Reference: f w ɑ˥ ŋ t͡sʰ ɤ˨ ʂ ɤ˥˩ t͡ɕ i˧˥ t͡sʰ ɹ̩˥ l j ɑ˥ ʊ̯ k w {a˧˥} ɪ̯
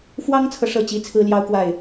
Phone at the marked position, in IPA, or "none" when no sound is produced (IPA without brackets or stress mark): a˥˩